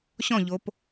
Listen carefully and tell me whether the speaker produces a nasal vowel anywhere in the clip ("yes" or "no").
yes